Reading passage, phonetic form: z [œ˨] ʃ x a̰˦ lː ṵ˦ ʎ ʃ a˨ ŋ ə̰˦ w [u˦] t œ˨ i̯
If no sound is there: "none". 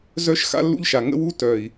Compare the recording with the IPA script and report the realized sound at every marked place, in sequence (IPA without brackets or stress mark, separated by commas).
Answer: œ˦, u˦